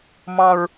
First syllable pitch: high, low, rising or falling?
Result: low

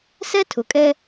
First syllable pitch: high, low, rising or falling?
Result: high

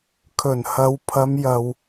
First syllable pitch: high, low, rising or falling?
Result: low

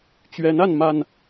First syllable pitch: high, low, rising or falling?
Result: rising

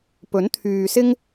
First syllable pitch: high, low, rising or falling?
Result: rising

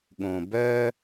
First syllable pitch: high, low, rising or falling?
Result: low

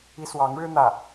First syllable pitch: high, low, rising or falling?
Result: high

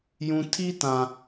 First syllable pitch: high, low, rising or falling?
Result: low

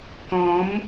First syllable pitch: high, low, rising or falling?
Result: rising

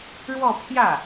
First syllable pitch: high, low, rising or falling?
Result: falling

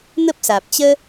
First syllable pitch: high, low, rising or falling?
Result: high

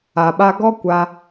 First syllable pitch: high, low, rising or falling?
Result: low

